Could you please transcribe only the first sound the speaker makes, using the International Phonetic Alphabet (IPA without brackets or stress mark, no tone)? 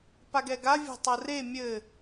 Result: p